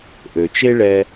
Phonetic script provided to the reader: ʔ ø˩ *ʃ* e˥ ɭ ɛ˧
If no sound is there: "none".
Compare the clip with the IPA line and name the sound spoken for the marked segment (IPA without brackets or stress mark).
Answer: t͡ʃ